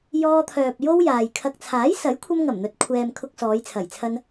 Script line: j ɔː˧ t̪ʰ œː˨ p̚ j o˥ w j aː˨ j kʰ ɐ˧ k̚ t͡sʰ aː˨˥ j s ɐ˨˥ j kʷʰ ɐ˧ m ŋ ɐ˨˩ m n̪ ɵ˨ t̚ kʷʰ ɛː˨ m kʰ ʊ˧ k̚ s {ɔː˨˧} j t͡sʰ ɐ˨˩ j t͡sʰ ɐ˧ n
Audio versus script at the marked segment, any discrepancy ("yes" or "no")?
no